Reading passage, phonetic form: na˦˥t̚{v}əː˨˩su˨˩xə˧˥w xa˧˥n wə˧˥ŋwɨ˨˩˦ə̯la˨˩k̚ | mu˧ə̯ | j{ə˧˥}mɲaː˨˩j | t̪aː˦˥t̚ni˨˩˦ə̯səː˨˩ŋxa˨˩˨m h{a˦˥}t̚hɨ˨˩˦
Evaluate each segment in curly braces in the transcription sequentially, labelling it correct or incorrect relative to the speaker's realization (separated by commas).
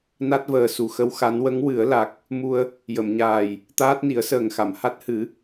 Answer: correct, incorrect, correct